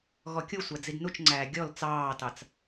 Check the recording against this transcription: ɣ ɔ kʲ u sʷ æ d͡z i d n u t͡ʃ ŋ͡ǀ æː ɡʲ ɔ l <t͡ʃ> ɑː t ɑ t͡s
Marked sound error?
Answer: yes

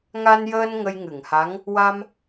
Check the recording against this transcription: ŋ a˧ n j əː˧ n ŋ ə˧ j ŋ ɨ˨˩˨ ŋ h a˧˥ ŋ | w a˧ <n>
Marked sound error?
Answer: yes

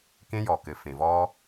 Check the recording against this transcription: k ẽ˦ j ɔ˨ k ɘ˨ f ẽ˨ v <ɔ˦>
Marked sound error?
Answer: no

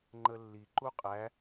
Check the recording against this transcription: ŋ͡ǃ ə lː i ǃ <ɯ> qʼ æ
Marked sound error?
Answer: yes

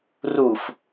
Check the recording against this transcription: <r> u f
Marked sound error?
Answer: no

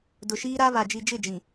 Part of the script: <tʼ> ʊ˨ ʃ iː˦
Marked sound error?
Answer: yes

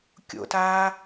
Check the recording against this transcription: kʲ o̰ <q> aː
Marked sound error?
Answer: yes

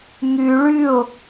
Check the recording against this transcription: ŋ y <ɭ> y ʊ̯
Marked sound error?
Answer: no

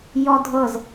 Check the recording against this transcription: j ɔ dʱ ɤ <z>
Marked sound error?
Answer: no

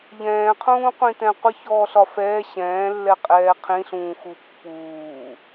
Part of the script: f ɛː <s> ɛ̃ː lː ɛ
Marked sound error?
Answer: yes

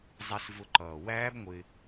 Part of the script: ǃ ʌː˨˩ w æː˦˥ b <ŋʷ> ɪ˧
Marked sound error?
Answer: no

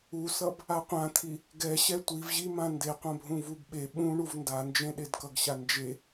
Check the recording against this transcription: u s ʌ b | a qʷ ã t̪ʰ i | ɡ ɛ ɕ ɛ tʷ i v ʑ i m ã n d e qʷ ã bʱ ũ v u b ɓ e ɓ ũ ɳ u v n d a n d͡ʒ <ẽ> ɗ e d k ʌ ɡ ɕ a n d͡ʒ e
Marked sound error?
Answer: no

